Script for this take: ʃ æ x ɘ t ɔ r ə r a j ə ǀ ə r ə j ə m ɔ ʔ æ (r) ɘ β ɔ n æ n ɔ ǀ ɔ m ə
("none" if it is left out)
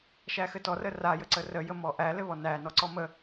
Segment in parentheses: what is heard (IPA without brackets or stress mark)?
l